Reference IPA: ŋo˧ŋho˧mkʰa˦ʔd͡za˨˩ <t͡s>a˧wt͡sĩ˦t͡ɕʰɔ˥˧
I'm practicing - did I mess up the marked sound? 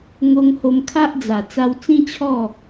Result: no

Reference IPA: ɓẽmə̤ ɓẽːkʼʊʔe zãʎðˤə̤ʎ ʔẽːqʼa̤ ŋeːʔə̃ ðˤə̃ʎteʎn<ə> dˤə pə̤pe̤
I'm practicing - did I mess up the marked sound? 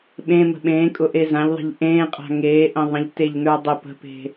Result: yes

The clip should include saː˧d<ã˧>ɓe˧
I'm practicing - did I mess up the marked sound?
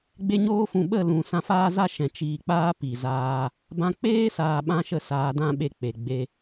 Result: yes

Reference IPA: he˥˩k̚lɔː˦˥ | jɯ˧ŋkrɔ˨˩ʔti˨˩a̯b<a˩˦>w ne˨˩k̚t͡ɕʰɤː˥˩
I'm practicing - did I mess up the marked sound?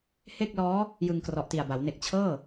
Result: no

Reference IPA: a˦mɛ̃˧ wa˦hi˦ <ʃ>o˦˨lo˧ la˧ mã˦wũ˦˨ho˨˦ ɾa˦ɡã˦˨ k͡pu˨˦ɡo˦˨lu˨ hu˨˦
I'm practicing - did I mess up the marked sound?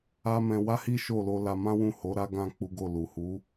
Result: no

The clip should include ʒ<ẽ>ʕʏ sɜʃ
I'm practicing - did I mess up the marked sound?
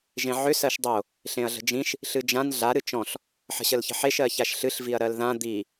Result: no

